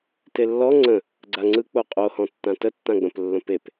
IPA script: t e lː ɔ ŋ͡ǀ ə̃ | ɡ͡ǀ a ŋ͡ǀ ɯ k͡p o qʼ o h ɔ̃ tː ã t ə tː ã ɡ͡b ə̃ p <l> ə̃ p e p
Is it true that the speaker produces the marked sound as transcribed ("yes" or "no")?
no